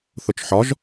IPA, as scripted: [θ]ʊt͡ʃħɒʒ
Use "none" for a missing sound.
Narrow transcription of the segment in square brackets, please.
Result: θ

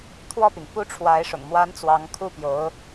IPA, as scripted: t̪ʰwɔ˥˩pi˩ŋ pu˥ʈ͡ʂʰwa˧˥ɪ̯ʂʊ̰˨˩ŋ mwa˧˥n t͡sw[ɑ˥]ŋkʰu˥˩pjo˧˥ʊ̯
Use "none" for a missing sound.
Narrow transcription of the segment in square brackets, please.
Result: ɑ˧˥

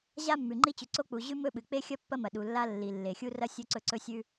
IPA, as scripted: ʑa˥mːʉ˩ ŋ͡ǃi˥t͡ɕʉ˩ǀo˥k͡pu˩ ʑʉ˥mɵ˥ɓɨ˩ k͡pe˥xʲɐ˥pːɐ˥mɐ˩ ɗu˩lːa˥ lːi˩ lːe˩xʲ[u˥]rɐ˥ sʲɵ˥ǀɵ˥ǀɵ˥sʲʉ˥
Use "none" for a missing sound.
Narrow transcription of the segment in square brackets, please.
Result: u˥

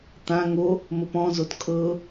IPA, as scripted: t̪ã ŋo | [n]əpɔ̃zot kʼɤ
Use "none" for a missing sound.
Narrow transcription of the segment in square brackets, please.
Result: m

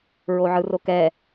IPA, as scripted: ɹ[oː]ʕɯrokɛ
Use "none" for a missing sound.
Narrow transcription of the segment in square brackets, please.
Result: o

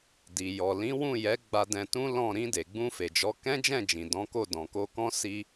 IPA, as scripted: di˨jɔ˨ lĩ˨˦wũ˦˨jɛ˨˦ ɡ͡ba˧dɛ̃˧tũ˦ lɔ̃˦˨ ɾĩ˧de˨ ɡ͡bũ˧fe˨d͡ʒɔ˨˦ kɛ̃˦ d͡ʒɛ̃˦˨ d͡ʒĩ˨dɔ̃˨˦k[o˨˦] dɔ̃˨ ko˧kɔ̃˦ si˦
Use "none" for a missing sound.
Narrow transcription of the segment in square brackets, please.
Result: o˦˨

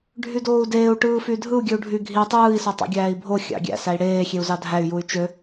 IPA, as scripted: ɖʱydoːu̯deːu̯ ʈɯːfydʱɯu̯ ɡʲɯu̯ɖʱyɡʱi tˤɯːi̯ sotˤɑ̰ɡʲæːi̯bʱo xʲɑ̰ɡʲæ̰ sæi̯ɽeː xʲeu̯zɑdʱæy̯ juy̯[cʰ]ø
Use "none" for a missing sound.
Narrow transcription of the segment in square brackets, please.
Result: t͡ʃ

